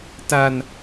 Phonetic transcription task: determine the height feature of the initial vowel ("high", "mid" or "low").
low